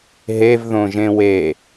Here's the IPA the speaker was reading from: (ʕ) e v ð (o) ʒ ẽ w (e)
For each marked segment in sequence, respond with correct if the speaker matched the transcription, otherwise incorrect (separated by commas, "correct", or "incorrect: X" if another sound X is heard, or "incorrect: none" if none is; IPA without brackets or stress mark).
incorrect: ɦ, incorrect: õ, correct